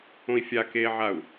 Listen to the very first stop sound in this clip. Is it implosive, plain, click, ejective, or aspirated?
plain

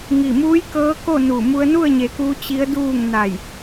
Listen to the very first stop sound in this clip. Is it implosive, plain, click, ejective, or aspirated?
plain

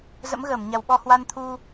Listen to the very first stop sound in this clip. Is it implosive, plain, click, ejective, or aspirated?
implosive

